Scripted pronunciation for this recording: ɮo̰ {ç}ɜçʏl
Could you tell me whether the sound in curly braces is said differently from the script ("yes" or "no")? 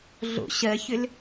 yes